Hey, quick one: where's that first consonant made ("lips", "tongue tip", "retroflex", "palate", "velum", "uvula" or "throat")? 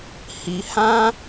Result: throat